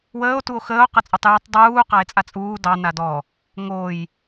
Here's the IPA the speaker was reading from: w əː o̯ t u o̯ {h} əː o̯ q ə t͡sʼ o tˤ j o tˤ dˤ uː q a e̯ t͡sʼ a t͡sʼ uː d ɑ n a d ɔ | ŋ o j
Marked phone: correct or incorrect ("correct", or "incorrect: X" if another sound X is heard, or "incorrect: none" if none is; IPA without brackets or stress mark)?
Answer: incorrect: x